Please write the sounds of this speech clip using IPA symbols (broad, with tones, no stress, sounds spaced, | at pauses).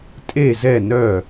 tʼ e˥˨ z ɛ˥˨ n œ˥˨